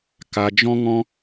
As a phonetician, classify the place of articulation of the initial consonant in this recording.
velar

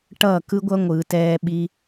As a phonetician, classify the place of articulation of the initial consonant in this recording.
retroflex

